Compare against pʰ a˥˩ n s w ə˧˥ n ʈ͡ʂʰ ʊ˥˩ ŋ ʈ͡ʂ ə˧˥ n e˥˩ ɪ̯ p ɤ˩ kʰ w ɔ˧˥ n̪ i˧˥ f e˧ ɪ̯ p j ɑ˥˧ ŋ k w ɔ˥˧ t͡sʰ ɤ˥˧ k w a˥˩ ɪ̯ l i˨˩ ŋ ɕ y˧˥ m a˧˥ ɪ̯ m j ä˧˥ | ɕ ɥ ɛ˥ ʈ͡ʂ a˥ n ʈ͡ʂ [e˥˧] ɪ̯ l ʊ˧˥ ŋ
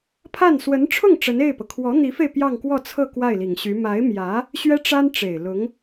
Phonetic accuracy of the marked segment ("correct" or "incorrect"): incorrect